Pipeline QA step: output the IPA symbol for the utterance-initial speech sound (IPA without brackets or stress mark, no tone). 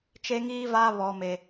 t͡ʃ